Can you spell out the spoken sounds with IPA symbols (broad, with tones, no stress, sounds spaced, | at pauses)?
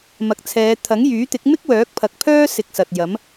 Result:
m ɐ˨ k̚ t͡sʰ ɛː˨˧ t̪ʰ ɐ˨˥ ŋ j yː˨˥ t̪ ɪ˨˥ k̚ m ɪ˥ k̚ w œː˨˥ k̚ pʰ ɐ˨ k̚ pʰ œː˥ s ɪ˧ k̚ s ɐ˨ t̚ j ɐ˨˥ m